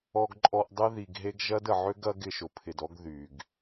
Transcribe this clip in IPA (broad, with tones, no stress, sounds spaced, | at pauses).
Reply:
ɔ˨ ɡ ǃʼ ɔ˨ ʔ dˤ e˦ ð i˨ ɡ ɦ e˦ ɡ ʒ ɐ˦ d ə˨ ʕ ø˦ ɡ ɐ˦ ɡ ɪ˨ ʃ ʊ˨ pʰ ɪ˨ d ɔ˦ ɡ ð y˨ ɡ